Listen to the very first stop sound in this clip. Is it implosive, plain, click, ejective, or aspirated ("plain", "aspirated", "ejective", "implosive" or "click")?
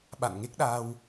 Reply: implosive